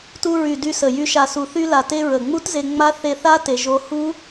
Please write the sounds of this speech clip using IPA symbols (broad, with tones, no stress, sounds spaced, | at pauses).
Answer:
t u˧ ɹ y˨˩ d y˧ s ə˨˩ j y˧ ʃ a˨˩ s u˨˩ θ y˧ l a˨˩ t e˧ ɹ ə˨˩ ŋ͡m u˦˥ t z e˧ ŋ͡m a˦˥ θ e˧ θ a˦˥ t e˧ ʒ o˦˥ h u˦˥